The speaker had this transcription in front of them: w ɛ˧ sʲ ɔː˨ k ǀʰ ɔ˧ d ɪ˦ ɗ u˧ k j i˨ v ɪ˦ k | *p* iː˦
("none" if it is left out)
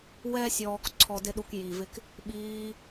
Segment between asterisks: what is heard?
ɓ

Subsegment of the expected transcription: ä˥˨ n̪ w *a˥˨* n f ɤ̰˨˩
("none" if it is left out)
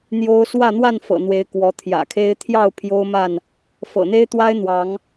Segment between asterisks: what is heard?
a˥˨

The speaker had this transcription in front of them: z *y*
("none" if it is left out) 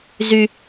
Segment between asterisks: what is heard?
y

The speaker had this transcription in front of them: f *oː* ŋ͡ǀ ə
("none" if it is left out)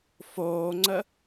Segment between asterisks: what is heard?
oː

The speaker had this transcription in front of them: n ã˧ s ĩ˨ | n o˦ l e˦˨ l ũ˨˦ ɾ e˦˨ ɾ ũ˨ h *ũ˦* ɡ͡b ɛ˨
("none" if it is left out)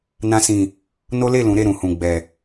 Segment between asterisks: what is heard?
ũ˨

